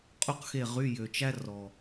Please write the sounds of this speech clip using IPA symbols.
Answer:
qʼ o˥ q x e˦˨ ʁ y˧˥˧ j ø˨˩ t͡ʃ æ˥ r ɔ˨˩

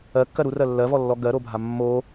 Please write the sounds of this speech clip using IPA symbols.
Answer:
ɜ kː ɜ ɾ u r ɜ lː ɜ v ɔ lː ɔ ɡ ɜ ɾ o bʱ a mː o

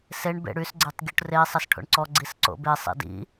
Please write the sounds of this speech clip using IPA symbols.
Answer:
s e ɳ b ḛ ɽ y s ɡ͡ǀ e tˤ ɡʲ u ʈ r e sˤ ɛ s ʈʰ o̰ ɳ ǀ ɔ ɡ͡ǀ i s ǀ o̰ b e sˤ ḭ d ḭ

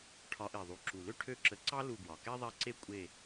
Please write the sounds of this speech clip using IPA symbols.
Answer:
ʈʰ ɒ˨˦ ʔ e˨˩ ðˤ u˨˩ ǁ u˨˩ l ø˥ ʈʰ ø˦˨ ǁ ə˨˦ ǀ ɑ˥ l u˦˨ ɡ w ɒ˨˩ k ɛ˥ ðˤ ɛ˦˨ ǀ e˥ kʷʼ e˦˨

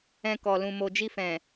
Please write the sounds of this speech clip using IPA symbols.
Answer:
ɛ̃˧ k ɔ˨ l ũ˨ m o˨ d͡ʒ i˧ f ɛ̃˨

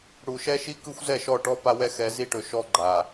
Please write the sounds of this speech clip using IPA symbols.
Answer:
ɽ u˨ ʃ ɛ˦ ʃ i˦ k ɯ˦ xʷ z ɛ˦˨ ʃ ɔ˦˨ ʈ ɔ˦ p a˦ w ɛ˦ x ɛ˨˦ z i˦ ʈ ɵ˨ ʃ ɔ˦ ɡ͡ǃ a˨

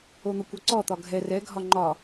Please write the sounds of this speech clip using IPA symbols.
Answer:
o n̪ ʌ kʷ ɔ ǀ ɔ t̪ ɒ ɡʱ ɛ r ɛ ɡʱ ɒ ŋ͡ǃ ɒ

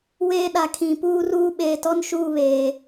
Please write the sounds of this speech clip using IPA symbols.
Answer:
w eː˦ ɗ a˨ kʰ ĩ˨ p uː˦ r uː˦ ɓ eː˨ t ɔ˦ n ʃ uː˦˨ β eː˨

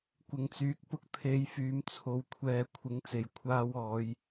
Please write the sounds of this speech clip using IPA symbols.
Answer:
kʷ ɪ˨ ŋ t͡s yː˨ k̚ p ʊ˧ k̚ t̪ʰ e˨˧ j f yː˧ m t͡sʰ o˧ w kʷʰ ɛː˧ kʷʰ ɪ˨˥ ŋ t͡s e˨ j kʷʰ aː˧ w ɔː˨˧ j

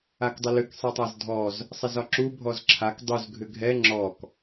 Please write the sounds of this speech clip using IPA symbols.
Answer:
a k dˤ ə l ʏ k sˤ ɛ tˤ a z dʱ ɔ z | sˤ ɛ z ɒ ǁ u bʱ ɔ z ǁʰ a k dˤ u z ɡʱ ʏ ɡʱ ɛ ŋ͡ǁ ɔ k

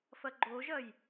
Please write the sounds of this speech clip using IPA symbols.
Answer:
f ɐ ɡ͡ǃ o ʒ ɐ j

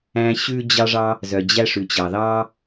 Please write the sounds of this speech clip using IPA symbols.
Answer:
æ̃˦ ɕ ʉ˦ d͡ʑ ɑ˦ ʐ ɑ˦ | z œ˩ d͡ʑ æ˦ ʂ ʉ˩ t͡ɕ ɑ˩ ð ɑ˦

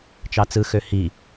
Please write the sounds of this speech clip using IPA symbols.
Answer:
t͡ʃ ɑ t͡s ɯ x ø h i

